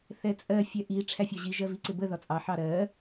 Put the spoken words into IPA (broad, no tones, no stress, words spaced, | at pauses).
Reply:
θɛt͡sʼɜ fʲɛʔi ʈ͡ʂʰæfʲɒʑi ʒɜviǀɪbə ðɒt͡sʼɑ ħɑɾɜ